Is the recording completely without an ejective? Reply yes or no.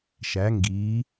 yes